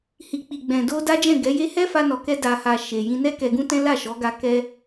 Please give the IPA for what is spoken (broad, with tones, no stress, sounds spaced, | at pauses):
h i˨ k͡p i˨ ɡ͡b ɛ̃˨ d o˧ d a˦ d͡ʒ ɛ̃˦˨ ɡ ɛ˨˦ j e˦ h ɛ˦ f a˧ n ɔ˨ k ɛ˧ d a˨ h a˨ ʃ e˨ j ĩ˧ n ɛ˦ k ɛ˧ ɡ ũ˦ t ɛ̃˦ l a˦˨ ʃ ɔ˨˦ ɡ a˧ k ɛ˧